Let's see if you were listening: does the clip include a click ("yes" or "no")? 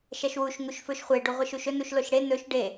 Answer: no